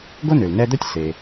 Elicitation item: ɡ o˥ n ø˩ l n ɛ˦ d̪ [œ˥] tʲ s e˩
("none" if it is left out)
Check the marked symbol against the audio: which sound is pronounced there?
œ˥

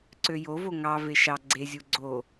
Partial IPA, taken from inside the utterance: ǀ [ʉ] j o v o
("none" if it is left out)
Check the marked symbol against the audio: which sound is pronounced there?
ø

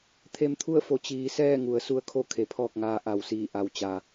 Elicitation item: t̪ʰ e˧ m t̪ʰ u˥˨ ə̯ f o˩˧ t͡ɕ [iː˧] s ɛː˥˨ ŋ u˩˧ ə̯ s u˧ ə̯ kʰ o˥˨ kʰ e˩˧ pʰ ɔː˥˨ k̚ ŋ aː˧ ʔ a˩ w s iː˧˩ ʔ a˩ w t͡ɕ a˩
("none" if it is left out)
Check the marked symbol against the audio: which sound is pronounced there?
iː˩˧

